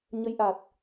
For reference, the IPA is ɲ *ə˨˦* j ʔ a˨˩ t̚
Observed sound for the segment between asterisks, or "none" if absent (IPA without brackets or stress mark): ə˨˦